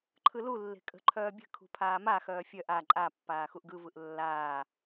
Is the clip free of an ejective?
no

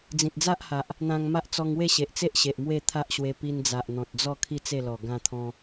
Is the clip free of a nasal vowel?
no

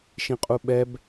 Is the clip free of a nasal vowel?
no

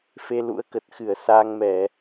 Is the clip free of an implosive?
yes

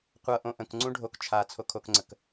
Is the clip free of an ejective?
yes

